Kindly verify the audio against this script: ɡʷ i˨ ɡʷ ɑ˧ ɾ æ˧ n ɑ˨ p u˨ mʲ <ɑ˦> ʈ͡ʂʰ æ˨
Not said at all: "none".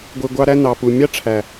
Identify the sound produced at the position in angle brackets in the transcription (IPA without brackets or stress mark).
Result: ɑ˦